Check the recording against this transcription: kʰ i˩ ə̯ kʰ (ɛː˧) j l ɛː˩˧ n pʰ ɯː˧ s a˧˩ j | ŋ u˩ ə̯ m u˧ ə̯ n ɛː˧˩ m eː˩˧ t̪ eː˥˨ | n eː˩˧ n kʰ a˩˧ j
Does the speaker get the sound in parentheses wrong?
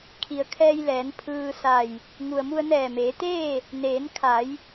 no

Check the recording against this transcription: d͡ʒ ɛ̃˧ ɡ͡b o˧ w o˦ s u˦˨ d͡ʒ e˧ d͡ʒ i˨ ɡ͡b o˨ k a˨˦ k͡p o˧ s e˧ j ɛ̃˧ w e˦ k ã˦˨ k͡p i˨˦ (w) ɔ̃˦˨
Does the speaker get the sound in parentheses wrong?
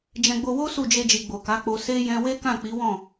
no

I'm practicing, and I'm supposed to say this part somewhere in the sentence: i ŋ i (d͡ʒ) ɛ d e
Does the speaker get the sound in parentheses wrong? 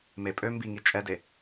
yes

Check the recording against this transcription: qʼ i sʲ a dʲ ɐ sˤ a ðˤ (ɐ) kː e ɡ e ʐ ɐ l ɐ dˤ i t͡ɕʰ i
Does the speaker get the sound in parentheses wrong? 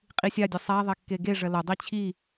no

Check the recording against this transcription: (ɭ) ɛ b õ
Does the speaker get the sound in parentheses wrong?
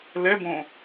yes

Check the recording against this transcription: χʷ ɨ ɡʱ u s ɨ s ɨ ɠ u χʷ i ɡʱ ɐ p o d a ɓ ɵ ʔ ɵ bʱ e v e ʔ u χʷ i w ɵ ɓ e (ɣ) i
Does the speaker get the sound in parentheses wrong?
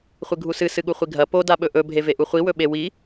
yes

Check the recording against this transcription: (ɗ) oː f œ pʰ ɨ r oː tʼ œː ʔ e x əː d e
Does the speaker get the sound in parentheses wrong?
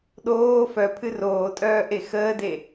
no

